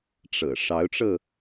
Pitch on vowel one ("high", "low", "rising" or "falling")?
low